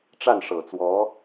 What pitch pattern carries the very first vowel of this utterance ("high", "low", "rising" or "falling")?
falling